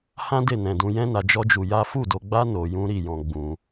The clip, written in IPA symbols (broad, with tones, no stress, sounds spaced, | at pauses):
h ã˦ d e˦˨ n ɛ̃˨ d ũ˧ j ɛ̃˦ n a˧ d͡ʒ ɔ˦ d͡ʒ u˧ j a˦ f u˦˨ d o˧ ɡ͡b a˦ n o˧ j ũ˦ ɾ i˦˨ j ɔ̃˧ ɡ͡b ũ˧